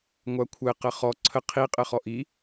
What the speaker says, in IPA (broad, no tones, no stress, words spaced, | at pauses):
ŋʷakʷʰɘqə χɔ ǀʰə qʰiqʼɘχɔ ʔi